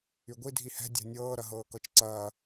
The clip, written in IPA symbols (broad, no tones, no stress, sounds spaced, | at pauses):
y ɡʷ i dʱ i h ɛ̤ dʲ a̤ nʲ ɤː ɾ ɐ ɦ ɤː k ɤ t͡ʃ ǀ ɐː